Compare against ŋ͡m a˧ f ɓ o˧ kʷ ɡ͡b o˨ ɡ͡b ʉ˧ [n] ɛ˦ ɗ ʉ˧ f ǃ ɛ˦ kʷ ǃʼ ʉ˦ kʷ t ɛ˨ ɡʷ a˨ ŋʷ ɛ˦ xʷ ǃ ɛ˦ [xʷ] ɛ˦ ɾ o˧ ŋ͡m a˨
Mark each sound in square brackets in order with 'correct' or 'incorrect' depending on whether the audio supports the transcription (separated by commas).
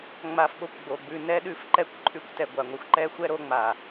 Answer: correct, correct